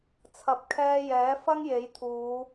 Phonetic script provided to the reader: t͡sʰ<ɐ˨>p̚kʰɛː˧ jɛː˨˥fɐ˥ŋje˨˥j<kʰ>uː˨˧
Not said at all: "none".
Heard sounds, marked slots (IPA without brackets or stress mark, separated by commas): ɐ˨, t̪ʰ